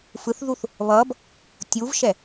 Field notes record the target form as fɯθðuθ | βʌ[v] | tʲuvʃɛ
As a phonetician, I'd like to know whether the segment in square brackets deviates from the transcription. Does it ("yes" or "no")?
yes